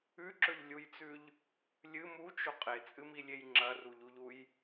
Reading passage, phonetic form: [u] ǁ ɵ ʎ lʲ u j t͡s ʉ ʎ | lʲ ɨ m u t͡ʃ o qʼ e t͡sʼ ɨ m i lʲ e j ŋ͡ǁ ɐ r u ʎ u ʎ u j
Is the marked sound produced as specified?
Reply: no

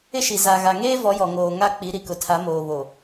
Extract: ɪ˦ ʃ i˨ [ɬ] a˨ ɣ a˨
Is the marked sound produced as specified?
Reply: no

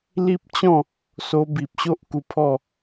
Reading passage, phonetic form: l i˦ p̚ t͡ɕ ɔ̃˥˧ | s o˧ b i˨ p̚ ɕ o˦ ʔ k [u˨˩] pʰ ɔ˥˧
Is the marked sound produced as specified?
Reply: no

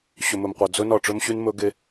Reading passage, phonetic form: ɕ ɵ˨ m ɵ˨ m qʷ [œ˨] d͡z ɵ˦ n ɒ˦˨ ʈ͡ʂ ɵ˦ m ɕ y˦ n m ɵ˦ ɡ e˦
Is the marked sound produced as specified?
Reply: yes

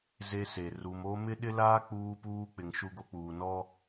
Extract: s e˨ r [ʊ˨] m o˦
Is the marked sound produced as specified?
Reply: no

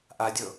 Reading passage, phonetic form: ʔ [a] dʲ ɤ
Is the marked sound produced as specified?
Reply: yes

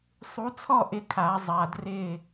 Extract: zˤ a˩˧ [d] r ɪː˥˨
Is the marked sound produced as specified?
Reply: yes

